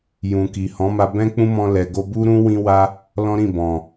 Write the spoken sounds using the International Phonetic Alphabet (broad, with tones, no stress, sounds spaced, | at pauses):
j ũ˨ k i˨ h ɔ̃˨˦ m a˧ b ɛ̃˦ k͡p ũ˦ m ɔ̃˧ l ɛ˨ ɡ o˧ b u˦ ɾ ũ˦ w ĩ˦ w a˦ | l ɔ̃˦ ɾ ĩ˦˨ b ɔ̃˨